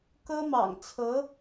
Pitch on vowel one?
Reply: high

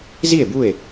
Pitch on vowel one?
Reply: falling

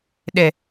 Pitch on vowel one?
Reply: high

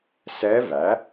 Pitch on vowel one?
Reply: rising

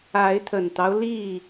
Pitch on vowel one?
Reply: rising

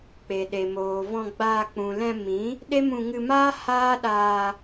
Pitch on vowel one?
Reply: low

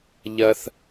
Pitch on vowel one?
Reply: high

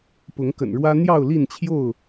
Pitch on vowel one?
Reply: rising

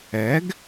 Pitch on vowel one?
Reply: rising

